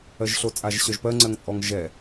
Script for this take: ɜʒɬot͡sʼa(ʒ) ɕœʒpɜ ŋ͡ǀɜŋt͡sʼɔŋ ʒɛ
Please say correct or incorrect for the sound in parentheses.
correct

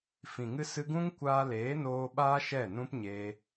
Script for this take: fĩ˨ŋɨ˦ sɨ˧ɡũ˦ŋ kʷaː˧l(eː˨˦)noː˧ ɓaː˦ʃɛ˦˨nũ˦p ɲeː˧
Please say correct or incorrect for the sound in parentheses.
correct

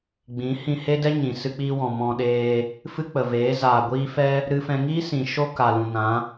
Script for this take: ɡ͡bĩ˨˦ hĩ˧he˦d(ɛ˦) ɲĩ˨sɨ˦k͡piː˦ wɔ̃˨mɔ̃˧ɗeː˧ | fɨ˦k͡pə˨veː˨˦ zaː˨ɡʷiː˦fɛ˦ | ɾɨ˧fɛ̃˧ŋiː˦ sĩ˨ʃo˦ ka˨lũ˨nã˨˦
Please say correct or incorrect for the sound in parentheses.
correct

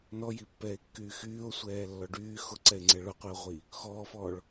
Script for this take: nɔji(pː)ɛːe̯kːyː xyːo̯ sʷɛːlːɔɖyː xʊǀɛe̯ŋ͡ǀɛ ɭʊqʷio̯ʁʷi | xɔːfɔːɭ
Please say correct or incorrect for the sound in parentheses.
correct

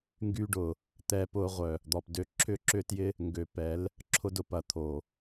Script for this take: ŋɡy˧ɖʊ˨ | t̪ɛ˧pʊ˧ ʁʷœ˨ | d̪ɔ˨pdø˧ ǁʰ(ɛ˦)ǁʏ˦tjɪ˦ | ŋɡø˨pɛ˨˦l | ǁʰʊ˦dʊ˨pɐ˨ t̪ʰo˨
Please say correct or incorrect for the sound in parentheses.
incorrect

